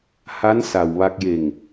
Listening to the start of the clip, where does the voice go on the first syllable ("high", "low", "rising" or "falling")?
rising